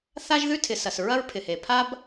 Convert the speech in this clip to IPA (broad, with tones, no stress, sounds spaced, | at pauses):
θ a˥ ʒ ð ʉ˥ tʰ ɪ˩ s ɐ˩ s ɹ ɐ˥ ɹ pʰ ɪ˩ h e˩ pʰ a˥ b